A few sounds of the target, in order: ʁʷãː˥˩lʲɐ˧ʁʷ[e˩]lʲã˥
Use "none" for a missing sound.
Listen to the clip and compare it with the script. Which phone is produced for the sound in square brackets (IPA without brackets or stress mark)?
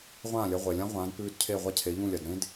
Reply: e˩